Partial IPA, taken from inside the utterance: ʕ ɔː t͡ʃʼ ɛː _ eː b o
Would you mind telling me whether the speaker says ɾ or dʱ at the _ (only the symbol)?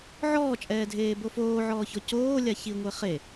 dʱ